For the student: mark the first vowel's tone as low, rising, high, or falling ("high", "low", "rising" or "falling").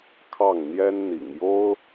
falling